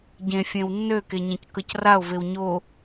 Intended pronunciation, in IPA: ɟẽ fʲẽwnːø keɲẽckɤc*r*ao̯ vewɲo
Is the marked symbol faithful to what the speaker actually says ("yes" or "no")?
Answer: yes